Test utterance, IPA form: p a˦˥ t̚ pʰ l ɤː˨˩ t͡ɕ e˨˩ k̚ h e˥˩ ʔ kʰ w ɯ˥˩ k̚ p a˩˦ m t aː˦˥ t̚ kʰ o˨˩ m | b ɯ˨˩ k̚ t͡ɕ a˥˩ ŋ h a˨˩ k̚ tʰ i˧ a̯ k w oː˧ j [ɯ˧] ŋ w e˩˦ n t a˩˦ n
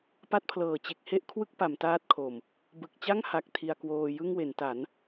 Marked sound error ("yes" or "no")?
yes